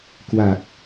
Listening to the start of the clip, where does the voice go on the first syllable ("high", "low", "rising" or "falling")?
low